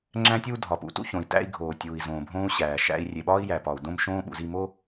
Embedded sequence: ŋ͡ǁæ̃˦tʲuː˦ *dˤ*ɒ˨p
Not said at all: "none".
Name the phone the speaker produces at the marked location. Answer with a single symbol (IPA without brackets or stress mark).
dʱ